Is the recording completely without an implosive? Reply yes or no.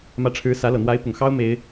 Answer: yes